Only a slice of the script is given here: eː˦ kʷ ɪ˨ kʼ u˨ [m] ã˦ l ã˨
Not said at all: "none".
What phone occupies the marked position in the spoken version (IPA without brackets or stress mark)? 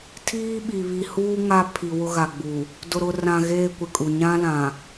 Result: ɲ